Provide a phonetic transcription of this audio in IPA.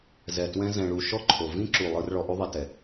z ɛ˨ t w ɛ̃˧ z ɛ̃˨ ɭ u˨ ʃ ɔ˦ ǃʰ o˨ v ĩ˦ ǁ u˨ lˠ ɯ˧ r ɭ ɔ˧ ʔ u˦ ðˤ i˧ t ɛ˨

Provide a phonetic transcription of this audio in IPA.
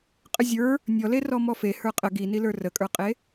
qʼ ə zʲ ə˞ | nʲ ɔ l e r ɔ m ɔ f e h ə˞ qʼ ə ɡ i n i l ə˞ r ə kʼ ə˞ qʼ e

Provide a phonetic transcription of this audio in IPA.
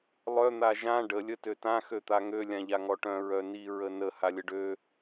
lˠ œ n̪ a ʒ ã ɖ ə lʲ ə t ø t ã x ø t̪ a ŋ ø lʲ ã ʎ a ŋ ɔ ʈ œ̃ ɹ œ n i ɹ ə n ə h a lʲ ə ɖ ø

